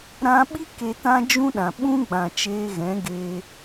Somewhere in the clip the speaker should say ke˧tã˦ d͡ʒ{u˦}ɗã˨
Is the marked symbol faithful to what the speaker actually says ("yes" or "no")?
no